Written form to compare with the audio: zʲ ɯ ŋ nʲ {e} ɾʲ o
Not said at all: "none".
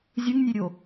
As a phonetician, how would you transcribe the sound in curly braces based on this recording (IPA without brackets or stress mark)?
e